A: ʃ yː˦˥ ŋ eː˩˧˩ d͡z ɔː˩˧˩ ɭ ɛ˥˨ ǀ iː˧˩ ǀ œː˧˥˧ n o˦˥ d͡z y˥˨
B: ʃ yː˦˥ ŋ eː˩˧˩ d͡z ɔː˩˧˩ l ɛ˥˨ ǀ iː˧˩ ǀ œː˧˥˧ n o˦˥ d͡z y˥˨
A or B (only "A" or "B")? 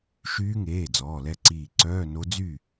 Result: B